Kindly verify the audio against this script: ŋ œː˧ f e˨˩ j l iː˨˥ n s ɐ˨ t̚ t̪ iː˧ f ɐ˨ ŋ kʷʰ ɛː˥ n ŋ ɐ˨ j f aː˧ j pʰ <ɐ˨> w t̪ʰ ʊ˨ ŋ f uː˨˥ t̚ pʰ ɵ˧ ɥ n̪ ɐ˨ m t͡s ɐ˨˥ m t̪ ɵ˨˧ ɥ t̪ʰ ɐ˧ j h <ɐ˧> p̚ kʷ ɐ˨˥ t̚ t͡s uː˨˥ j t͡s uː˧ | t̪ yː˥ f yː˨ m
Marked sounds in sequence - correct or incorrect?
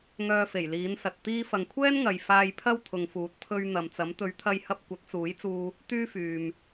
incorrect: ɐ˥, correct

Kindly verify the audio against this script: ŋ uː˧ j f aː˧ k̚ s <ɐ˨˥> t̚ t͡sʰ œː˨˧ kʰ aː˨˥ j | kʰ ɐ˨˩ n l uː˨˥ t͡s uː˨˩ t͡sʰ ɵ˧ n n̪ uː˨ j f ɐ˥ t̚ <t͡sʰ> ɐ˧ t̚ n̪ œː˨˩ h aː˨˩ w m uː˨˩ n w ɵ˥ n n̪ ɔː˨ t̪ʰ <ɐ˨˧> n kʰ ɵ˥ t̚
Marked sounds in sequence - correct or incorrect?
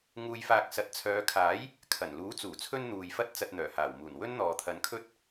correct, incorrect: t͡s, correct

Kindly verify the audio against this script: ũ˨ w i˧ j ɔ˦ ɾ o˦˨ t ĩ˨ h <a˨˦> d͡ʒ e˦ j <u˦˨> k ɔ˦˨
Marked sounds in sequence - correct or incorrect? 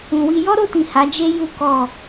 correct, incorrect: u˦

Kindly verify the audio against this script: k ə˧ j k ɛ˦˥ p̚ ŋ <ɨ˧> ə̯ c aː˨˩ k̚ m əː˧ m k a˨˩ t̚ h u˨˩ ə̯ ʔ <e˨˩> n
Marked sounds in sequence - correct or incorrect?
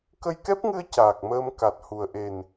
correct, correct

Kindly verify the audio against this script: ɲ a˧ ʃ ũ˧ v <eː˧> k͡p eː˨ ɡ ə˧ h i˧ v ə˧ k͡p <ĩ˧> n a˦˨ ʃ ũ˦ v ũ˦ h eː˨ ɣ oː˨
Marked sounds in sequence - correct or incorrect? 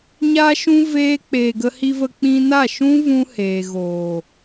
correct, correct

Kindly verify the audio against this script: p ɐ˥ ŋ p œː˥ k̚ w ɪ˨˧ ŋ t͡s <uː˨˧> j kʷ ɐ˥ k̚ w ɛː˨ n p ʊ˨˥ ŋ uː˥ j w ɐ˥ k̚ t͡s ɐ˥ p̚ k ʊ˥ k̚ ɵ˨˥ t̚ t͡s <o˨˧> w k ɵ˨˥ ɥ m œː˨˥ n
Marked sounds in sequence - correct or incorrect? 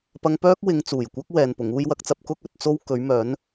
incorrect: uː˨˩, incorrect: o˥

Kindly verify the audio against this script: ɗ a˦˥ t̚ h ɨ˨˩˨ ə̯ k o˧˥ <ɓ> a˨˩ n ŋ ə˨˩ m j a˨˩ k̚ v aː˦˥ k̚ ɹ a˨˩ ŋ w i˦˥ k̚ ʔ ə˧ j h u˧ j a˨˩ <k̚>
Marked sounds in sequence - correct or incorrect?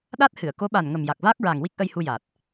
correct, incorrect: t̚

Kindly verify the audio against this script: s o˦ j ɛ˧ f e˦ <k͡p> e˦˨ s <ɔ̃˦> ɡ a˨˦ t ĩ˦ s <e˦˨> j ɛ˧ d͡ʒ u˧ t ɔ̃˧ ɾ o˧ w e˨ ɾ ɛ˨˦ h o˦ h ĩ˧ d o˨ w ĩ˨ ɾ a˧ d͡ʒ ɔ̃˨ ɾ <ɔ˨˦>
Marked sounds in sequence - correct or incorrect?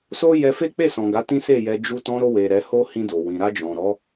correct, incorrect: ɔ̃˨, correct, correct

